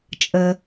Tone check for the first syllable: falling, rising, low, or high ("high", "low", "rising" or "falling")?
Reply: low